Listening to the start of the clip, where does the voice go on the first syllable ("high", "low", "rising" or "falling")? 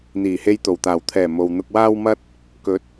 low